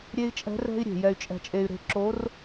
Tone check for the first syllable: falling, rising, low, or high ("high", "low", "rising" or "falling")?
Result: high